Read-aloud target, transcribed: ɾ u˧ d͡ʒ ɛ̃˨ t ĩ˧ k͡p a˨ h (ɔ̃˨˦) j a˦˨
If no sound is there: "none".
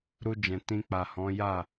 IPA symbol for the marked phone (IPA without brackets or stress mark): ɔ̃˨˦